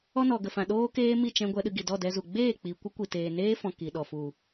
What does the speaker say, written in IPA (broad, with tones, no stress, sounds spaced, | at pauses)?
ɔ˧ n ɔ˨ ɡ ə˨ f ã˨ ɗ oː˦ k eː˦ m i˦˨ t͡ʃ ɛ̃˧ ɡʷ ɛ˧ ɗ ɨ˧ ɡ i˨ d ɔ˦˨ d ɛ˧ z u˨ ɡ͡b eː˦˨ k͡p i˨ kʷ ə˦ kʷ i˨ t eː˨ n eː˦ f ɔ̃˨ k i˨ ɗ ɔ˨ f u˨